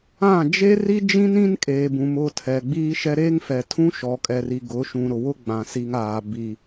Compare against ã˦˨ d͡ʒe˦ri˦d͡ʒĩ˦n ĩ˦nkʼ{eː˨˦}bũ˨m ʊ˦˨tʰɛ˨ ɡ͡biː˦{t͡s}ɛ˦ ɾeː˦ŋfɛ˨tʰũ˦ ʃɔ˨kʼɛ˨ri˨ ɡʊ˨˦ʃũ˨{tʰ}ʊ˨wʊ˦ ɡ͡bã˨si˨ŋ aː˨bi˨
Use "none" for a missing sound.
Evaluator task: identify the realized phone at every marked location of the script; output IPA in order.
eː˨, ʃ, ɾ

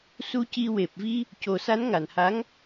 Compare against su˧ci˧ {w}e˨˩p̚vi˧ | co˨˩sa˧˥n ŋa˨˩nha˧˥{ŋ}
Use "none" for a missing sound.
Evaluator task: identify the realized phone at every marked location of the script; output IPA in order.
w, ŋ

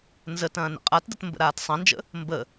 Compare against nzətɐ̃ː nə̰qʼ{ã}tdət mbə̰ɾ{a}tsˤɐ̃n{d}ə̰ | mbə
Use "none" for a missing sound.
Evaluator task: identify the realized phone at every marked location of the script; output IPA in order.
a, aː, d͡ʒ

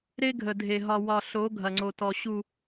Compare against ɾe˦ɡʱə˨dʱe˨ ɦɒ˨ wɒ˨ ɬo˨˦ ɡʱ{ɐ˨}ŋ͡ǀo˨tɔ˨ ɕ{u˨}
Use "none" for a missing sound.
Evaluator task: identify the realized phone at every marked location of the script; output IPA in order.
ɐ˨, u˨

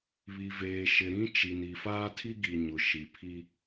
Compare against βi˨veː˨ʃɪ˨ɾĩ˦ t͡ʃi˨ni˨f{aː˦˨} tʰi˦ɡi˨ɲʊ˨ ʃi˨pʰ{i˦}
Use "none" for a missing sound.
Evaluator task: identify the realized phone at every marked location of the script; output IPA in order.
aː˦, i˦

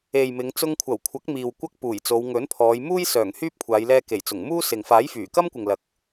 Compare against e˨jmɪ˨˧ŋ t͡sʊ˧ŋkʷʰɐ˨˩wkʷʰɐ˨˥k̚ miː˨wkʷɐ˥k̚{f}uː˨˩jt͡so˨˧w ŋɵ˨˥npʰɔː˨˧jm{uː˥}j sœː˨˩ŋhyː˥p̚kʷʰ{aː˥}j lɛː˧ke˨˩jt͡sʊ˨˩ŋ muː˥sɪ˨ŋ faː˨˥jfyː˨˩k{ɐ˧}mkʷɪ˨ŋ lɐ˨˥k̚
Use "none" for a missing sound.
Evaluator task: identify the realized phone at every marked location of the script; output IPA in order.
p, uː˥, aː˨˧, ɐ˥

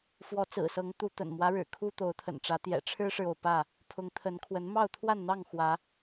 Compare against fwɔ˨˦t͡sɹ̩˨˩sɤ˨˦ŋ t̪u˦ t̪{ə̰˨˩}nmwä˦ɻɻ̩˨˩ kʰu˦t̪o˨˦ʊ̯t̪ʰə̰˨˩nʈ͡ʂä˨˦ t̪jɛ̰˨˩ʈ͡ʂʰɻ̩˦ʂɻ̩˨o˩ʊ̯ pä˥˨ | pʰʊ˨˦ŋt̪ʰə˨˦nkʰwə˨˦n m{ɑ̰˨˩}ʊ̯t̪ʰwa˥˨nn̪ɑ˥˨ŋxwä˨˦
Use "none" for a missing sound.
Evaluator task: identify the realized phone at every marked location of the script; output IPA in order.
ə̰˨˩, ɑ˥˨

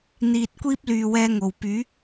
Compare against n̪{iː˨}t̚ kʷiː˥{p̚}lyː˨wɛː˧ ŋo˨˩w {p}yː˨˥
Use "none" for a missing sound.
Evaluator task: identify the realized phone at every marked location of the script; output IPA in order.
iː˨, p̚, p

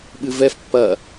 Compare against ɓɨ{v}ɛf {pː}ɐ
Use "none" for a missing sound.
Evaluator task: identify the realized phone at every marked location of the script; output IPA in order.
v, pː

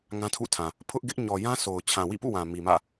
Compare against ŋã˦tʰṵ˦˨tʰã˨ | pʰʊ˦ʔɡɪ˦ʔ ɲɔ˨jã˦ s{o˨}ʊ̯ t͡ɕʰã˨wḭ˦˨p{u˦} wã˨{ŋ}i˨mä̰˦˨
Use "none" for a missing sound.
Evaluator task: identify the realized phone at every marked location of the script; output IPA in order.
o˨, ṵ˦˨, m

